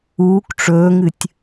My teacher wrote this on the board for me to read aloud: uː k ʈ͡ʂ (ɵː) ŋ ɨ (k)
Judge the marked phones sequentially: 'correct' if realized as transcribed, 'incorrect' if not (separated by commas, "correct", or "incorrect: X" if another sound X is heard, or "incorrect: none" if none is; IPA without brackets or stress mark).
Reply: correct, incorrect: tʲ